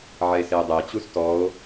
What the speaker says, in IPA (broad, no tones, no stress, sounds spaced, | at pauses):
ʕ ɛ e̯ s e o̯ dˤ e t͡ɕ u s t ɔ o̯